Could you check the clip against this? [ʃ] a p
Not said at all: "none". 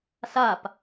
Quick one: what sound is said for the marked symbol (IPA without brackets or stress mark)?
s